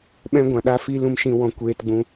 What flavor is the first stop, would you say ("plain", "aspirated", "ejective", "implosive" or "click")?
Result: implosive